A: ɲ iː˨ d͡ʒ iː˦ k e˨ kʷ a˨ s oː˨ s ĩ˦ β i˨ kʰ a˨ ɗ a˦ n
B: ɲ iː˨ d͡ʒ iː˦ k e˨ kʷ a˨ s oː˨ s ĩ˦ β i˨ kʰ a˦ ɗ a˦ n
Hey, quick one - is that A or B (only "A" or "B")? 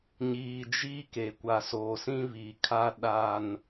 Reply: B